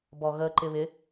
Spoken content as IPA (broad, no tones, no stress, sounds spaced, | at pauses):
b ɔ ɣ ə ǃ ɪ β ɪ